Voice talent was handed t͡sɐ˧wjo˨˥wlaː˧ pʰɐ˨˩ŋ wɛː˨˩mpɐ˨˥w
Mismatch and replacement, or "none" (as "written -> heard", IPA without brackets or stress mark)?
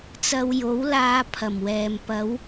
ŋ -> m